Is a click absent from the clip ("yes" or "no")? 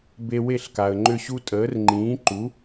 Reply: no